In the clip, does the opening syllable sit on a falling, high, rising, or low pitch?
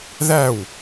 falling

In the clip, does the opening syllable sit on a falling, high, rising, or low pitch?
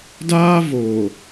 high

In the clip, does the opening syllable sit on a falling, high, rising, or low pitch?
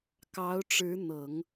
rising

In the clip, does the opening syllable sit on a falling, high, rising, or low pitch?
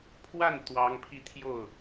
falling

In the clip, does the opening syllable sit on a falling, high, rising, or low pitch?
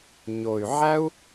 low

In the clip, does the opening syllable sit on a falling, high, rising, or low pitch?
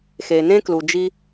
low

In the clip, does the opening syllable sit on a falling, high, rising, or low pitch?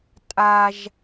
high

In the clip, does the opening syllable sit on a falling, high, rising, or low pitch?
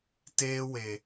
high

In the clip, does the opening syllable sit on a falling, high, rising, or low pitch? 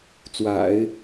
low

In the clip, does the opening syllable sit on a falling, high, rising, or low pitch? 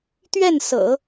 falling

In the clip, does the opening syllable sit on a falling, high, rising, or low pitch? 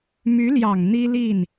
rising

